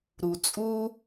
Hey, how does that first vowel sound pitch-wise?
low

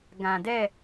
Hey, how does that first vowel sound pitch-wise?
low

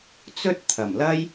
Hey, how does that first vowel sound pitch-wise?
high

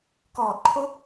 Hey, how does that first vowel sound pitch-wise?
low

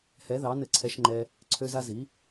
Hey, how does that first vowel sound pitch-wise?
rising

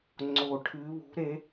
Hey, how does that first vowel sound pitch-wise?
low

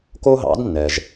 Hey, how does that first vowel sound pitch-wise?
high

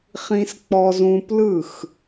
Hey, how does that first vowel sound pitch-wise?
high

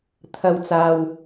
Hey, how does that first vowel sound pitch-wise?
low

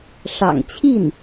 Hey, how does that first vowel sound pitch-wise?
low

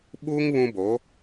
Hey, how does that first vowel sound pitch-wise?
high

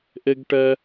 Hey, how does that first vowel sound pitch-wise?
high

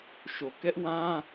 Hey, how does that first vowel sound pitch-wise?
low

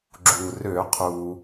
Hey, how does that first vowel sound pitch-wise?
low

